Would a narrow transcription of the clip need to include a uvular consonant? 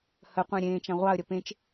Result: yes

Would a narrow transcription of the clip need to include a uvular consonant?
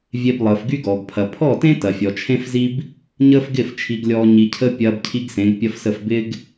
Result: no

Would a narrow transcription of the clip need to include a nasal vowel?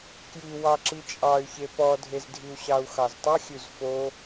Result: no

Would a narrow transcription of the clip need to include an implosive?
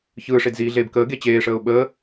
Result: yes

